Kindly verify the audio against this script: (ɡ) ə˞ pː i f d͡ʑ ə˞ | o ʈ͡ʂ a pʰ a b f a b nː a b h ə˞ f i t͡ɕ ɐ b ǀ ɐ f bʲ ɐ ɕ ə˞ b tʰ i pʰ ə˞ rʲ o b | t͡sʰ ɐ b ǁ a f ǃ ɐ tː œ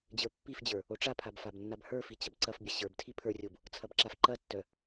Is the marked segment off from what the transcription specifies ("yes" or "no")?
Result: yes